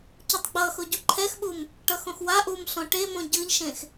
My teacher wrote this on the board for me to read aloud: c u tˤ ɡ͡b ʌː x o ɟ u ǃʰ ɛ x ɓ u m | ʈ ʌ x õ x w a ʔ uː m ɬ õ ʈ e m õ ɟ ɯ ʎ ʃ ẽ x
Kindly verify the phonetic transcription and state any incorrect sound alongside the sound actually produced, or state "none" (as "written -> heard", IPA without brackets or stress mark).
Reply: none